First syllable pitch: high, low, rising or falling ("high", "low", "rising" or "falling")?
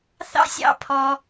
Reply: high